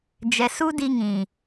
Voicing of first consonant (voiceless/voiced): voiced